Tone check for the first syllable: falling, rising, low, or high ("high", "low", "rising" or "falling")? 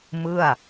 falling